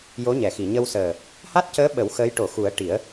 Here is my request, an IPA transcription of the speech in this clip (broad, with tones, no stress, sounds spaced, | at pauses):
j o˧˥ ɲ ɛ˨˩ x i˨˩˨ ɲ ə˧ w s əː˨˩ | h a˦˥ t̚ c əː˧˥ ɓ ə˨˩˦ w x əː˧˥ j ʈ o˨˩˨ x u˨˩˦ ə̯ ʈ i˨˩˦ ə̯